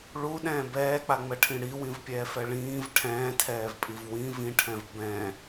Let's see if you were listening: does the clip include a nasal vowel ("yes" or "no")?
yes